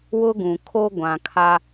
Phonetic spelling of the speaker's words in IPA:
w ʊ˦ ɡ ũ˨ kʰ o˦ ɡʷ ã˨ kʰ a˦

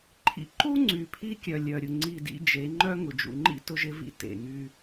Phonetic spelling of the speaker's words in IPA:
ǃʰ ḭ˨ ǃ u˦ ŋ͡ǀ y˨ pʰ i˦ kʲ œ˨ lʲ œ˨ ɾʲ ʊ˨ ŋ͡ǀ i˦˨ d ḭ˦ d͡ʒ e˨˦ ŋ͡ǃ œ˦ ŋ ʊ˨ d͡ʒ ṵ˨ ŋ͡ǃ ḭ˦ t ʊ˦ ʒ ɪ˦ v ḭ˦ t ḛ˨ ŋ y˦

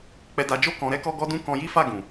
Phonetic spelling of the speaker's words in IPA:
k͡p ɛ˧ d a˧ d͡ʒ o˦ k ɔ̃˧ ɾ ɛ˦ k ɔ˦ ɡ ɔ˦ d ũ˦ k ɔ̃˦ j i˦ f a˦˨ ɡ ũ˨

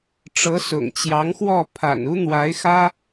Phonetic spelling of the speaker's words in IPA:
ʈ͡ʂ ɤ˧˥ s ʊ̰˨˩ ŋ t͡ɕ j ɑ˧˥ ŋ x w ɔ˥˩ pʰ a̰˨˩ n u˥ n̪ w a˧˥ ɪ̯ x ä˥

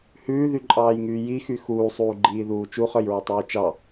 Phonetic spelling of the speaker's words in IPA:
h ʉː ð y ǃʼ ɑː j ŋ yː j i x y x uː sˤ uː ɡ͡ǃ iː ð uː t͡ʃ u χ œ j ɹ y tˤ ʉː t͡ʃ ɑ

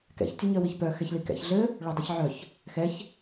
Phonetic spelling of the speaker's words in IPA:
k ɛ̰ ç tʲ œ ɲ œ w i ç p œ x ɛ ç l i k ɛ̰ ç ɮ ɘ | ɭ œ dˤ ɛ ç ʕ œ ç | x ɛ ç

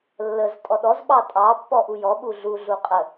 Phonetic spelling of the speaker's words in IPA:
lː ə z tʼ ɔ ɗ ɔ z ɓ ɑ tʼ ɑ pː ɔ ʔ u j ɔ ɓ u ɮ u ɮ u qʼ ə

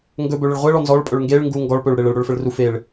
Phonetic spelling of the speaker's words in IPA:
ŋ ɡ ɵ b ɵ ɭ ə ɭ ʁʷ e ɭ ɔ n z ɔ ɭ pʼ ɵ ɭ ŋ ɡ e ɭ ŋ ɡ u ŋ ɡ ɔ ɭ p ɵ ɭ ɽ e ɭ ə ɭ ɽ ɵ ɭ f ə ɭ r u f e ɭ

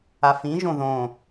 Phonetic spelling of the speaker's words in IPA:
a f ĩ ʒ õ ð õ

